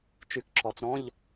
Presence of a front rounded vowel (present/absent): present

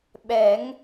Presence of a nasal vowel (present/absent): absent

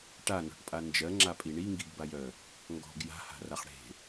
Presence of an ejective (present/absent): present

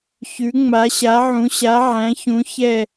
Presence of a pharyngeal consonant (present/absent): present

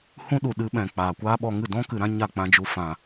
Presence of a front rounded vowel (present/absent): absent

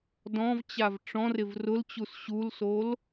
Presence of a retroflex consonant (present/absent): present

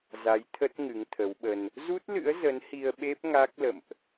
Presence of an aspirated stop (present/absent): present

